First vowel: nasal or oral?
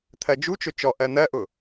oral